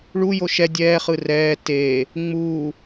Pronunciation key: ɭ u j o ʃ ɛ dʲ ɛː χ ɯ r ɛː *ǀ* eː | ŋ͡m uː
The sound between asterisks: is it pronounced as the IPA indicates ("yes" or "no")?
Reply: no